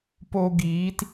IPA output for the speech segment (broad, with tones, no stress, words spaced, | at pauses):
po˧ ɡiː˨˦t